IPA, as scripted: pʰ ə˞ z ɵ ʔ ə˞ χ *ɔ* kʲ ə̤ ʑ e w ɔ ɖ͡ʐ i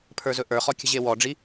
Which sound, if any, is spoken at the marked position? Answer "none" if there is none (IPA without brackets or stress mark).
ɔ